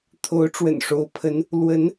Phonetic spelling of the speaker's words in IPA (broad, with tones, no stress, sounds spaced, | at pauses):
t̪ʰ o˧˥ ʊ̯ ʈ͡ʂ w ə̰˨˩ n ʂ o˧˥ ʊ̯ pʰ ə˧˥ n | l w ə˧˥ n